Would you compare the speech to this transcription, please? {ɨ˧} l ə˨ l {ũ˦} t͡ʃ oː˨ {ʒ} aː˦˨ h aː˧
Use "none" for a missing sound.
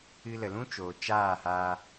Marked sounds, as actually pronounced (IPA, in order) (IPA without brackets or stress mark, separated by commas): ɨ˧, ũ˦, t͡ʃ